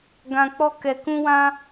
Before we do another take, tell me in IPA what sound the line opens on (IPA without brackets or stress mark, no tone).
ɡ